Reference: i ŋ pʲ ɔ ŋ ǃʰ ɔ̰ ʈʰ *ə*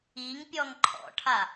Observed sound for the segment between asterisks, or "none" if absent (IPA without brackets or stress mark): a